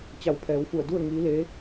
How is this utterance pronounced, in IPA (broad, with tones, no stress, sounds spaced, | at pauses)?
t͡ɕ a˧˩ w pʰ ɛː˩˧ w f u˧˩ ə̯ d u˥˨ ə̯ ŋ iː˧˥ l eː˧˥